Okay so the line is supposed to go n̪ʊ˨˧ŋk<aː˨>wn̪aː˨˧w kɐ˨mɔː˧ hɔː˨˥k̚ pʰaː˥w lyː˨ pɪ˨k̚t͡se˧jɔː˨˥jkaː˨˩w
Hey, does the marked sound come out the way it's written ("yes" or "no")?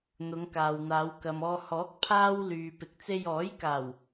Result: yes